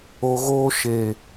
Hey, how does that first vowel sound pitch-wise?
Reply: low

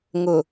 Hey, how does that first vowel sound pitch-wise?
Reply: low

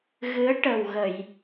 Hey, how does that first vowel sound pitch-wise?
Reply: rising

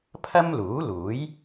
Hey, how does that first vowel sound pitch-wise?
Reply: high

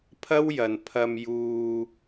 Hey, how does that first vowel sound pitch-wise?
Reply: high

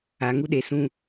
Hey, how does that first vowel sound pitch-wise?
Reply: low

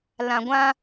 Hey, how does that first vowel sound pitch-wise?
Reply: low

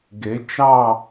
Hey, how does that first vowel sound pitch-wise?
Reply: rising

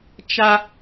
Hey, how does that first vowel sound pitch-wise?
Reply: high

